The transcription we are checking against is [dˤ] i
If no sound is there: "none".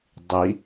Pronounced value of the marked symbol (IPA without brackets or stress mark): dˤ